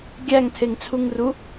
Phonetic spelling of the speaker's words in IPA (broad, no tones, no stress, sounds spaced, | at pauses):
ɡʲ æ ŋ tʰ e ŋ t͡sʰ u ŋ r u